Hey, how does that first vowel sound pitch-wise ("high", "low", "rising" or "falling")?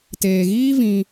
low